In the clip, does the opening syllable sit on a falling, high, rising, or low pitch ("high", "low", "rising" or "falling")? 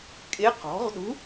rising